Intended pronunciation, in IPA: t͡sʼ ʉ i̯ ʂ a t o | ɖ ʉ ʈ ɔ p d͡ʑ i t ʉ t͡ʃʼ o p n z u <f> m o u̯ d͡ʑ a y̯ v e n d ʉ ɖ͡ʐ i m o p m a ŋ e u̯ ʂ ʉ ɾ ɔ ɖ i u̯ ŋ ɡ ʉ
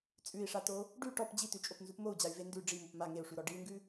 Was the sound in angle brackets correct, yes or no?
no